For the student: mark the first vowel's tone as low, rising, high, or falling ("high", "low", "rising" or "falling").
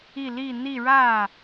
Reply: falling